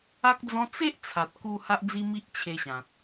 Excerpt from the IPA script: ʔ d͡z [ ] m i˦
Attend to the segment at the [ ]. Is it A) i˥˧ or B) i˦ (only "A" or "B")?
B